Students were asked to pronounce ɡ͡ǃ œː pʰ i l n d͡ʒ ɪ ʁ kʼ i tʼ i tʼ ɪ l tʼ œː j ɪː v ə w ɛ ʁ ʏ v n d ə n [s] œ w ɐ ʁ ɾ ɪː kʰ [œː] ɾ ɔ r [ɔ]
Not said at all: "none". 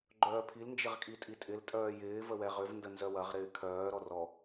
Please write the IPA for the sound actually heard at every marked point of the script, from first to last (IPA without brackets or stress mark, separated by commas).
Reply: z, œː, ɔ